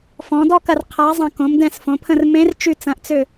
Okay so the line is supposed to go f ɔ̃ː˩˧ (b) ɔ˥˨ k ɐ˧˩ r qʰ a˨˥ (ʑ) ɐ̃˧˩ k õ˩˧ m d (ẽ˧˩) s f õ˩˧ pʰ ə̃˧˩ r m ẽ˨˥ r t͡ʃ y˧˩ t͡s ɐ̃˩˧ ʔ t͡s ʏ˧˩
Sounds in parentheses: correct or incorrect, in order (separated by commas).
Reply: incorrect, incorrect, incorrect